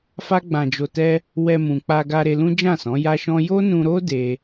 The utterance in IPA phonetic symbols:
f a˦ ɡ͡b ã˧ d͡ʒ o˧ t ɛ˦ | w ɛ˧ m ũ˨ k͡p a˧ ɡ a˧ ɾ e˧ l ũ˦ d͡ʒ ã˦˨ s ɔ̃˨˦ j a˦ ʃ ɔ̃˦ j o˦ n ũ˧ ɾ o˦ d e˦

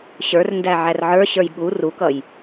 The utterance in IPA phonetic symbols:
ɕ ə˞ r n d æ ʕ æ r ʕ ə˞ ɕ ə˞ j ɠ u r u k ʌ j

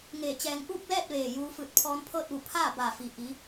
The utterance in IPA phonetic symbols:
ŋ eː˧˩ t͡ɕ ɛː˧ ŋ ʔ uː˥˨ k̚ l ɛː˥˨ t̚ ʋ eː˧˩ j uː˧ f ɯː˧˩ t̚ pʰ ɔː˧ n pʰ ɤː˥˨ t̚ ʋ u˧˩ pʰ aː˥˨ b aː˧˩ f i˩ ʔ i˩˧

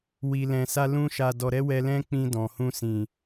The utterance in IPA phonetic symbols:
w i˨ l ɛ̃˨ s a˧ l ũ˧ ʃ a˨ d ɔ˨ ɾ ɛ˧ w ɛ˧ l ɛ̃˦ k͡p ĩ˧ d ɔ̃˨ h ũ˧ s ĩ˨

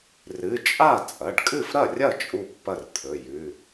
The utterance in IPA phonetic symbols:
r ɨ˩˧˩ t͡ʃʼ a˥˩ t͡sʼ ɐ˩˧˩ ɖ kʼ ɨ˥˩ f ɾ ɐ˥˩ rʲ ɐ˥˩ t͡ʃʼ u˥˩ pː ɐ˥˩ r t̪ʰ ɵ˩˧˩ j ʉ˩˧˩

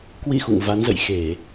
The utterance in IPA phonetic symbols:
k w ḭ˧˨ x ṵ˧˨ ŋ v a˨˦ n z ə̰˧˨ j x e˧˩˨

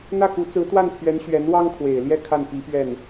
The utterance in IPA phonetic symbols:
n̪ ä˥˩ k u˧˥ t͡s ɹ̩˧˥ t̪ w a˥˩ n pʰ ɥ ɛ˧˥ n ɕ ɥ ɛ˧˥ n w ɑ˥ ŋ kʰ w e˨˩ ɪ̯ l j ɛ˥˧ kʰ a˥˩ n p i˧˥ p ɥ ɛ˥˩ n

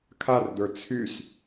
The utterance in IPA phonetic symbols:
kʰ a r d̪ ə˞ t͡sʰ y s

